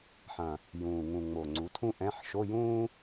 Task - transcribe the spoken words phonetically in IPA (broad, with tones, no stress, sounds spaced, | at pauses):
ħ ɐ̃˨˩ | j ũː˨˩ ŋ ũ˨˩ ŋ͡m o˨˩ ŋ͡ǀ u˩˥ tʰ ũ˥ ʔ ɛ̃˧˥˧ ħ ʃ o˧˥˧ j ũː˥